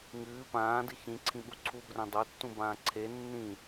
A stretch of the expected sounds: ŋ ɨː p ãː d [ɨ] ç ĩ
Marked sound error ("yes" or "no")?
no